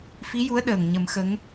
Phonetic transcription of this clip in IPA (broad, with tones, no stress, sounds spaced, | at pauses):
f i˧˥ j u˧˥ ə̯ ɗ əː˨˩ ŋ ɲ ə˨˩˦ m x ə˧˥ ŋ